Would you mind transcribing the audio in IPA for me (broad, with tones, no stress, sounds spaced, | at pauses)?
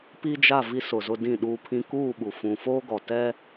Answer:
p i˦ d͡ʒ a˦˨ v i˦ s ʊ˨ z ʊ˦ d ĩ˦˨ ɗ uː˦ pʰ ĩ˦ k uː˦˨ ɓ u˨ f ũ˨ f oː˦ ɡ ɔ˨ t ɛ˦